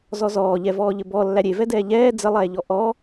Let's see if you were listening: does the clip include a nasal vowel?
no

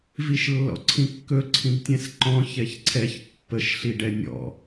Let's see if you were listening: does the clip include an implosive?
no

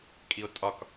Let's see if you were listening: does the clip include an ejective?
yes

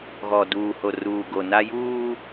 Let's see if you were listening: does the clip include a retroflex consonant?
no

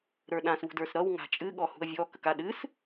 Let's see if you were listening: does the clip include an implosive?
yes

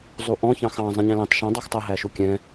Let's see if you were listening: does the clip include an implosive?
no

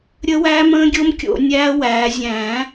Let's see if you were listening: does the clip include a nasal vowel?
yes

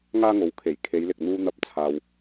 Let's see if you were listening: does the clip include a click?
no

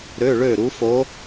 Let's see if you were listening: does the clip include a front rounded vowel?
yes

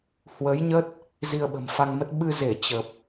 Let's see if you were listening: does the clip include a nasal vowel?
no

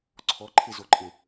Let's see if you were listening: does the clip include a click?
yes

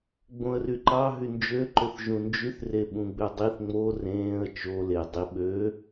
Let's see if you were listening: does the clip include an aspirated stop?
no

